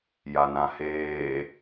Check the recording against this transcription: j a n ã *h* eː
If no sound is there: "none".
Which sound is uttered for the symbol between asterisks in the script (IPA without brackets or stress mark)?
h